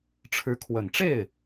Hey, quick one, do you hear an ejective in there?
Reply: no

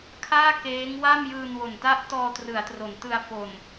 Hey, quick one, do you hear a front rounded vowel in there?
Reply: no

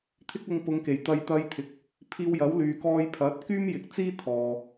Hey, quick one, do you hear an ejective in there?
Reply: no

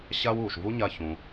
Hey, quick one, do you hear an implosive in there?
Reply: no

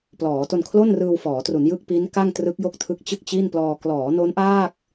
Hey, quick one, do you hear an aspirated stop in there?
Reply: yes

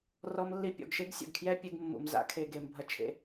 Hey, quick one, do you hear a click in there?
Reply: no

